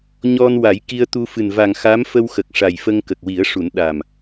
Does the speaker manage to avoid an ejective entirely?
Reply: yes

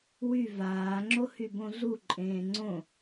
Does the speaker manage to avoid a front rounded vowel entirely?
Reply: no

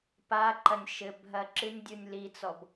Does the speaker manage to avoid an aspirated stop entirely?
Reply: yes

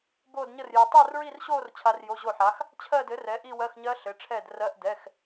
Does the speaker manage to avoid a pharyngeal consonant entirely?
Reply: no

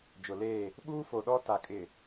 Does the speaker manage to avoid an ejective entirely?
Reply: no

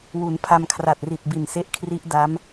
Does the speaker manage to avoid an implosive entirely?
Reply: yes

